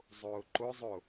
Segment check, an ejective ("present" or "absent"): absent